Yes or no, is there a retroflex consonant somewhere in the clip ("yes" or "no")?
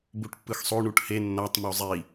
yes